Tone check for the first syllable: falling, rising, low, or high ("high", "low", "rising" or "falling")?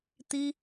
high